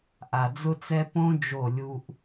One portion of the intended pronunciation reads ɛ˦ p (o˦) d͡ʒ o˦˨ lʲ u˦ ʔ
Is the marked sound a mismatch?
yes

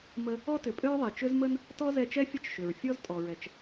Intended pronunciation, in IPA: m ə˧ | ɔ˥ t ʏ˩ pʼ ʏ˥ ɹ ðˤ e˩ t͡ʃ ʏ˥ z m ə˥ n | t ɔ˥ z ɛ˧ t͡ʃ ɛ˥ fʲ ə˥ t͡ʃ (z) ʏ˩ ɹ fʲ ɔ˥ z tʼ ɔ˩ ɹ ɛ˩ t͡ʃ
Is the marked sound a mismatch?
yes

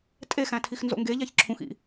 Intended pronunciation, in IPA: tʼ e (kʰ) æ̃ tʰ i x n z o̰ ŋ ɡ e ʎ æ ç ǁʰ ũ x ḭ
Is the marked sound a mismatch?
yes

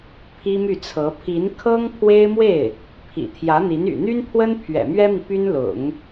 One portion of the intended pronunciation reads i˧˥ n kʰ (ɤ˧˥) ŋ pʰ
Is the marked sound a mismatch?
yes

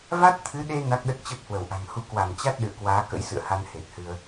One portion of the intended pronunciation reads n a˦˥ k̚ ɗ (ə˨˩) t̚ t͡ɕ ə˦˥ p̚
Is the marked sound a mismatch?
yes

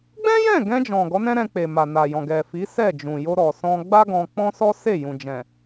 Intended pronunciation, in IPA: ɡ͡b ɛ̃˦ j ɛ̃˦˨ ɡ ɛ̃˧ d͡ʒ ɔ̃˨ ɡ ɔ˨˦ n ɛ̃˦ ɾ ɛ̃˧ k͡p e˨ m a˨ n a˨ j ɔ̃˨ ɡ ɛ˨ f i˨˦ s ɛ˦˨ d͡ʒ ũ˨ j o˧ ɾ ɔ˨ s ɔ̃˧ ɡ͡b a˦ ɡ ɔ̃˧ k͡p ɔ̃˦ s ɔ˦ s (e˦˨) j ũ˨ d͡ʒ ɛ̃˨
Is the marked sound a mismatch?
no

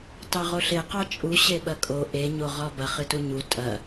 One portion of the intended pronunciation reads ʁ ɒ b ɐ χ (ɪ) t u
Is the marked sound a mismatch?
yes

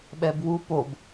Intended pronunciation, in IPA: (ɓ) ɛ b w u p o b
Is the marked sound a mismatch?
no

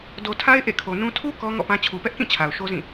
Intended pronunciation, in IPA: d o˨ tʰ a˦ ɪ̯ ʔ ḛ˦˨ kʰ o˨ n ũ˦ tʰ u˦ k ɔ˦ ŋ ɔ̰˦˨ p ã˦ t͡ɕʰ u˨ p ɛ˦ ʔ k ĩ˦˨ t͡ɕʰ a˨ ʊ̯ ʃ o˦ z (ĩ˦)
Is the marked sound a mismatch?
yes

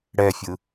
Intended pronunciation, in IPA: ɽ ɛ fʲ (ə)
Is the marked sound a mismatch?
yes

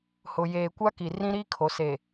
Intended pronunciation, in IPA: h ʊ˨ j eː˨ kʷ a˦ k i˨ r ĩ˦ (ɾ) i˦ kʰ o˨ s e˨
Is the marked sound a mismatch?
no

